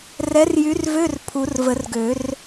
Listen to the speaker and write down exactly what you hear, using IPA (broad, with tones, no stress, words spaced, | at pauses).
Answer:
rɛ˨˥rjy˨˥rvø˧˥˧r pʰu˨˩˦rvə˨˩˦rɡø˨˩˦r